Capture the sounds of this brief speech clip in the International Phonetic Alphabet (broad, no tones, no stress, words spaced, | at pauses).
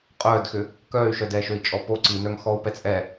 qʼœːdxʏ | kœːy̯ʃœdɛːʃøi̯ t͡ʃʼɔpo ǀinœŋ xɔu̯ pɛt͡sʼɛ